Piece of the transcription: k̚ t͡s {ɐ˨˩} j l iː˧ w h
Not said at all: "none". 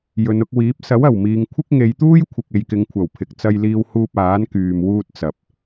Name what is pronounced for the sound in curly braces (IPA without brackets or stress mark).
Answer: ɐ˧